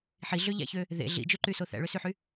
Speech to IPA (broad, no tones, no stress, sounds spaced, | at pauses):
ħ i ɮ ø ʎ æ̰ ç ø | ð ḛ ɮ ḭ d͡ʒ ø ǃ y s o θ æ̰ ɭ ø s y ħ y